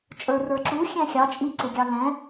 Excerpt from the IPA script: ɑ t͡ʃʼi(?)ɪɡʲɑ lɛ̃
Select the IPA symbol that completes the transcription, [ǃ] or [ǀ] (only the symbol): ǀ